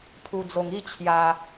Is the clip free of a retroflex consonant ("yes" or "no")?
yes